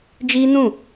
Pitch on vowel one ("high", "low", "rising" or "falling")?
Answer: high